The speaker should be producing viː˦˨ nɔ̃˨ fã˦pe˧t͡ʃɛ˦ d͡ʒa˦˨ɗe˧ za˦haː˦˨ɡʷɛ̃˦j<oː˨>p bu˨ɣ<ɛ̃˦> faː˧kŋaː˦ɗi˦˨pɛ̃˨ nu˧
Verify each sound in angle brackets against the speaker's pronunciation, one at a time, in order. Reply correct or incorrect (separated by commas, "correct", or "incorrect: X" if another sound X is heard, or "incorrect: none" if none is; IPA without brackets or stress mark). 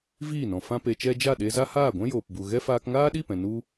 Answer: correct, incorrect: ɛ˦